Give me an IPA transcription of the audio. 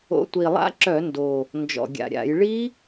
o̰˨˦ tʷ i˨˩ lˠ a̰˦˥ ǁ œ˧˩˧ n d o˨˩ | n d͡ʒ ɔ̰˨˩ ɡʲ a̰˨˩ ɾʲ a̰˧˩˧ j ɭ i˦˥

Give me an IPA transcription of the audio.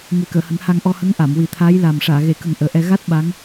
ŋ e˨˩˦ k əː˨˩˨ h ə˨˩˦ ŋ h a˧ ŋ ʔ ɔ˧ h ə˧˥ ŋ ʔ a˨˩˨ m w i˨˩˦ t̪ʰ aː˧˥ j l a˨˩ m ʂ aː˨˩˨ ɣ e˨˩˨ k ə˨˩ ŋ ʔ əː˨˩ ʔ ɛ˧ ɣ a˦˥ t̚ ɓ a˧˥ ŋ

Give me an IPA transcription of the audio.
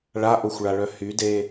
ɭ a ʔ o xʷ ɭ a ɭ œ h y d e

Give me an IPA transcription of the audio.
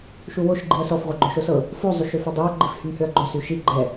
ʃ u w o ʃ ɡ͡ǃ i ɐ̯ s ɔ f ʁʷ ɤ ɡ͡ǃ o ʃ o s ɤ | f o zˤ y ʃ ø f o dˤ i ɐ̯ ɡ͡ǃ i f h y m h ø ɐ̯ ɡ͡ǃ o s y ʃ i ɡ͡ǃ ɛ

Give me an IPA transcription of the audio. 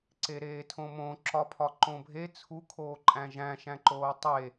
ǀ e ɾ eː tʰ õ m õ ǁ ɒ pʰ ɒ ǃ õ bʱ e t͡sʰ u kʰ oː ǃʼ æ̃ ʒ æ̃ ʃ æ̃ ǃ oː tˤ e

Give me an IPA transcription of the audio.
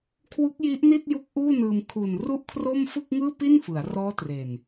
kʰ w u˦˥ k̚ j i˦˥ ʔ n i˥˩ t̚ j u˦˥ k̚ ʔ uː˥˩ n ɯː˧ m kʰ u˨˩ n r u˥˩ ʔ kʰ r o˥˩ m f ɯ˥˩ k̚ ŋ ɯː˥˩ p i˥˩ n f ɯ˩˦ a̯ r ɔː˦˥ t r e˨˩ n

